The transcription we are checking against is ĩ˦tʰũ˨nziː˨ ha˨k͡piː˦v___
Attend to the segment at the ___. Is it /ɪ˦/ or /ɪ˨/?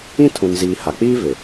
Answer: ɪ˨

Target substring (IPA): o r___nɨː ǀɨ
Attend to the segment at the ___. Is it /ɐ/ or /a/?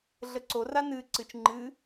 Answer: a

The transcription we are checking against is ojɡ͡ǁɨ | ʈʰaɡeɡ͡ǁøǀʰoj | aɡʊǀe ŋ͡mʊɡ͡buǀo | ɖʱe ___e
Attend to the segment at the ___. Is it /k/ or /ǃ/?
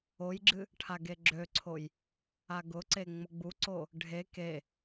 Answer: k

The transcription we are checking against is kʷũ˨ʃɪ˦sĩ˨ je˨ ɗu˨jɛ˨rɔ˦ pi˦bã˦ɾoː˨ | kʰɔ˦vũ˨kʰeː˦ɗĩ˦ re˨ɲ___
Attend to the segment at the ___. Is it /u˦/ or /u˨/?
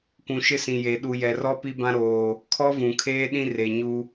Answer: u˦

